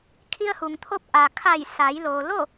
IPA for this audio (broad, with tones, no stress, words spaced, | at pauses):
kʰi˧ə̯hu˩ŋt̪ʰo˧˥p̚ ʔa˩kʰa˧˩jsa˩˧j loː˩ lo˥˨